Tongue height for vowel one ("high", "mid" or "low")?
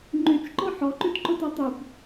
high